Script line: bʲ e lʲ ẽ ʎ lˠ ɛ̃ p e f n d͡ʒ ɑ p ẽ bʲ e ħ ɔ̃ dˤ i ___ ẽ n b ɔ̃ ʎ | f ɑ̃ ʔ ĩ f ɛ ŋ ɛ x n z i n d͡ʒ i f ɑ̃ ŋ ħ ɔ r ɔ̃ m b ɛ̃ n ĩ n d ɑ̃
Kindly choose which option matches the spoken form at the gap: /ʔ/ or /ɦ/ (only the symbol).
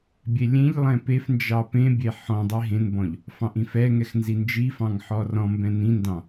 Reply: ɦ